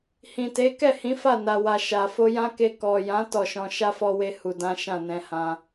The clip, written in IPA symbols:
hĩ˨te˨˦ kɛ˦˨hĩ˨˦ fa˦˨na˨wa˨ ʃa˨ fo˧jã˦ke˧ kɔ˨jã˨˦ tɔ˦˨ʃɔ̃˧ ʃa˦fɔ˧we˧ hu˨dã˨˦ ʃã˦˨nɛ̃˧hã˧

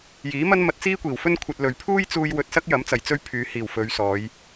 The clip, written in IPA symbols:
jiː˨˥mɐ˥n mɐ˧t̚t͡siː˥kʷiː˨˩wfɵ˥n kʷʰɐ˧t̚lɵ˨ɥ pʰuː˥jt͡suː˧j wɵ˧t̚sɐ˥k̚jɐ˨˥mt͡sɐ˨˩j t͡sɵ˥ɥpʰyː˨˧hiː˨˩w fɵ˨˧ɥsɔː˨˧j

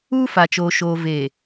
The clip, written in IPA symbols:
uː˦fa˨t͡ʃoː˨ ʃoː˨veː˨

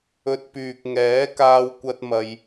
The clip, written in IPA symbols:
ɵ˧t̚pyː˨k̚ ŋɛː˨˥ kaː˥wkʷɐ˥t̚mɐ˧j

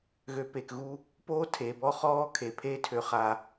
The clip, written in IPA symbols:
ɣø˨pe˨kɣu˦ | poː˦tʰe˨bɔ˦χɔː˦ kʰe˨ pʰe˦tʰø˨χa˨

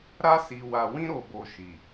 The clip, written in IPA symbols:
ɾa˧si˨wa˨wĩ˧ ɾo˨bo˨ ʃi˨

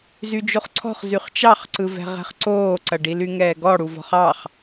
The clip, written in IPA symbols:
zyd͡ʒoχǀʰɔ̤χzyχ t͡ʃɑχǀɯvɛ̤ʁɛ̤χ ǀoːǀɐɖi lyŋɛːɡɔ ɽuvɔ̤χɑχ

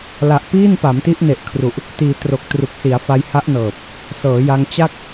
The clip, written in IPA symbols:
la˨˩ʔpiː˥˩n pa˩˦mti˦˥ʔne˨˩ʔkʰru˨˩ʔ | tiː˩˦ tro˨˩k̚tru˨˩k̚si˩˦a̯ fa˧jha˦˥ʔnɤː˨˩p̚ | sɤː˩˦ja˧ŋ t͡ɕa˥˩k̚

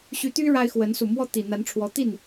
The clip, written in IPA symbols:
ɕy˧˥t̪y˥ ɻa˥ɪ̯xwə˧˥n su˨˩mwɔ˥˩ t̪i˨˩ n̪a˧˥nʈ͡ʂʰwɔ˧˥t̪i˥˩n

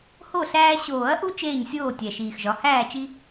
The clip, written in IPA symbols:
ho˥˩ɬæː˦ ɕoː˨˩˦ɐ̯ʔu˦ t͡ʃeː˥˩ɲsʲoː˥˩ tʲæ˨˩ʃiː˨˩xʒɒ˨˦ hæː˥˩t͡ʃi˦

